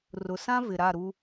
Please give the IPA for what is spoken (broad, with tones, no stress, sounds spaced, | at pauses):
r ʊ˨ s ã˦ v ɪ˨ ɾ a˦˨ ɾ u˦